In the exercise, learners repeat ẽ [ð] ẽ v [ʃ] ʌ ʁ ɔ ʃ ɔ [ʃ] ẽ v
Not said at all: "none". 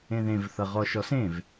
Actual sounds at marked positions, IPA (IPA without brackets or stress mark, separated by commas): ð, θ, s